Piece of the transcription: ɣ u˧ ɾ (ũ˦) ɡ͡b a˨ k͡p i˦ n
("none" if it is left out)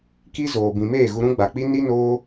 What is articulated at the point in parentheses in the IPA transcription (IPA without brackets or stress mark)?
ũ˦